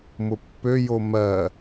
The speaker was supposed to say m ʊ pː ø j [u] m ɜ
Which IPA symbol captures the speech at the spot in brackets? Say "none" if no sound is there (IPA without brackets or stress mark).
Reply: o